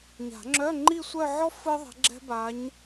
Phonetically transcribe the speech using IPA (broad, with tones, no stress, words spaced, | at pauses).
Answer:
ɲa̤˨˩˦ŋ͡ǁœ˧˥˧ ŋ͡ǃi˥˧sʷœ˥˧ʕɔ˥ fɯ˥ðˤɛ̤˧˥ ɡ͡ǁɛ̤˥ba˧˥ɲ